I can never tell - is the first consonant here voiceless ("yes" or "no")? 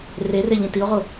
no